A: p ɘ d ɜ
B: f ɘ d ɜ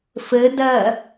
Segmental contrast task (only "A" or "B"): B